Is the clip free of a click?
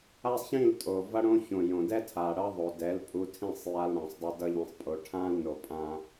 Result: yes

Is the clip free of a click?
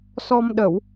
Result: yes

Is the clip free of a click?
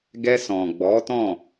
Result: yes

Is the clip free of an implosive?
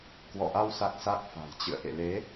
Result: yes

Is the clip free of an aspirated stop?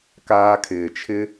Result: no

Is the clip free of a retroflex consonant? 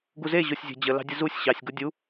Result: yes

